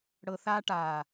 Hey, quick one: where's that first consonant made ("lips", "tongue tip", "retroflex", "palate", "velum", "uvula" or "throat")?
retroflex